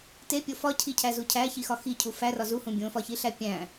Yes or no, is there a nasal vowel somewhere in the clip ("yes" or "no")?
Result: yes